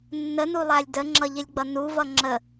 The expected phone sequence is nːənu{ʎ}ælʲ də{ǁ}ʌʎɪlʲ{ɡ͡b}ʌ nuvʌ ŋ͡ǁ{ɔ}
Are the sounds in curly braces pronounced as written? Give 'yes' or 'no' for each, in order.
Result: no, no, yes, no

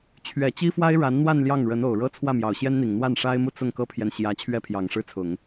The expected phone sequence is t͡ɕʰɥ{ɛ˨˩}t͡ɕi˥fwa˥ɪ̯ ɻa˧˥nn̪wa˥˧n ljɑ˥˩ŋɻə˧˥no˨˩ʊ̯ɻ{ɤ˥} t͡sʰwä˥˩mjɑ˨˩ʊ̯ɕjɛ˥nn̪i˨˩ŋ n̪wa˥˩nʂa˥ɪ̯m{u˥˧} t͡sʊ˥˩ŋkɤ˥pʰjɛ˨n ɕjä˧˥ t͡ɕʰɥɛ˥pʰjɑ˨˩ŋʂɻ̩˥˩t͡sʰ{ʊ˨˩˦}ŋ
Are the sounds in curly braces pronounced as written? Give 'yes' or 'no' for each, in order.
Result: yes, yes, yes, yes

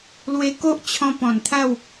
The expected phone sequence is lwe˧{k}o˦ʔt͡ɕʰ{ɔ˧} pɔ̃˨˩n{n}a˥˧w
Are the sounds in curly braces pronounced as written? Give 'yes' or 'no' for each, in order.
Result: yes, no, no

